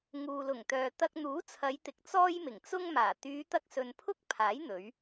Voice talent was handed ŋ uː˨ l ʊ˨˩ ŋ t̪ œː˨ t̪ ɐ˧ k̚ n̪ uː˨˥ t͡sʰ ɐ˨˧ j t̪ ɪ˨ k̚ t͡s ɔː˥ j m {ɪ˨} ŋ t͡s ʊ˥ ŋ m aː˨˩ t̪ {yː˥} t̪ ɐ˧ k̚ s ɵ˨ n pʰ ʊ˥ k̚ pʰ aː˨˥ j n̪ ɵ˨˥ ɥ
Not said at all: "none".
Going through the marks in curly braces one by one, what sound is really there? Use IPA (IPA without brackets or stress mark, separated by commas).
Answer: ɪ˨˩, yː˨˧